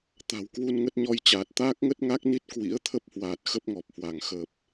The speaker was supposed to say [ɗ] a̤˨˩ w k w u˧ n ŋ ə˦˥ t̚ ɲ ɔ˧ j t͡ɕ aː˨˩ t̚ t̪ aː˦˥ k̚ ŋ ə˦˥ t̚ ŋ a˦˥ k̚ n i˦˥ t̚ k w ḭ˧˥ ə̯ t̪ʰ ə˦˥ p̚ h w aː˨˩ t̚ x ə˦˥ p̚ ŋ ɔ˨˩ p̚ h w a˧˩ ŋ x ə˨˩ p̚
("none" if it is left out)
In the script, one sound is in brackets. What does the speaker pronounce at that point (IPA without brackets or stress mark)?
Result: t̪